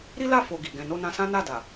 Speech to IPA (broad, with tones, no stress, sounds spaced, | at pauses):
ɾ i˦ l a˦˨ f o˧ ɡ i˨ ɡ ɛ̃˨ n o˧ n ã˧ s ã˦ n a˦˨ d a˨